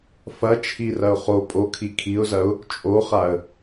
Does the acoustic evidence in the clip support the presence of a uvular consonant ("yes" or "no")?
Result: yes